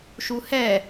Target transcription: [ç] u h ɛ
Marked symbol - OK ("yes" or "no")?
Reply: no